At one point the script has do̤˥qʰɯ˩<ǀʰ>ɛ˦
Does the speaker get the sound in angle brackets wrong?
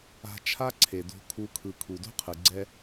yes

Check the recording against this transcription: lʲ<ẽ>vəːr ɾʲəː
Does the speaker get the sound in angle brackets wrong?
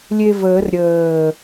yes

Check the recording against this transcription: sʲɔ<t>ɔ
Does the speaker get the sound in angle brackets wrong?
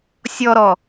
yes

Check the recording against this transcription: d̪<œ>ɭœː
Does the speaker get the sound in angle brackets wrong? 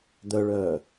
no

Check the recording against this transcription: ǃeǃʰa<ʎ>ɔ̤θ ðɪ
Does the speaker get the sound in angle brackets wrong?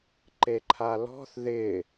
yes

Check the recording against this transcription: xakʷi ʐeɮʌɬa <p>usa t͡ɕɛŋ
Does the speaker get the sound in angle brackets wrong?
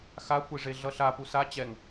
no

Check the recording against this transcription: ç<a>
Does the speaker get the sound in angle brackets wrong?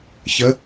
yes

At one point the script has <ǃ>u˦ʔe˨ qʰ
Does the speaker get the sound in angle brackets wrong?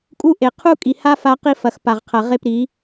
yes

